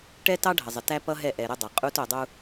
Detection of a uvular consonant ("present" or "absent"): present